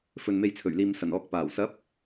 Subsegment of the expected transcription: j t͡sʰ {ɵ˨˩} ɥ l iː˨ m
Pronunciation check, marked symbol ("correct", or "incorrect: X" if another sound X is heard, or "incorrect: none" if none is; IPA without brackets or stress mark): correct